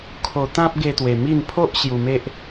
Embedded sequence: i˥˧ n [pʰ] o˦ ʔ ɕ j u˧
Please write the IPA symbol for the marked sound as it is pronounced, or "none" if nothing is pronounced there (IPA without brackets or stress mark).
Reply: pʰ